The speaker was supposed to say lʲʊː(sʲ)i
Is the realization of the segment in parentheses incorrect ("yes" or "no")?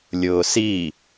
yes